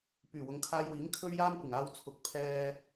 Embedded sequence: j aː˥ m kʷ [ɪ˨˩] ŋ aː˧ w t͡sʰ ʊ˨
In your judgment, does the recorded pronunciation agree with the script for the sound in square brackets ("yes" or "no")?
yes